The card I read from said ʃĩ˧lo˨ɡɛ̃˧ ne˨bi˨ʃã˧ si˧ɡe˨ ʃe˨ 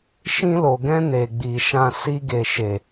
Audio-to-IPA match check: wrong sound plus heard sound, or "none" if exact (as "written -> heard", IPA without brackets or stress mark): b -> ɡ͡b